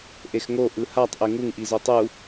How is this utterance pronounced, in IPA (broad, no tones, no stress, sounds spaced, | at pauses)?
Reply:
ʔ e x ŋ o ʔ ɯ h a tˤ ʔ e ŋ u ŋ ʔ i z o tˤ u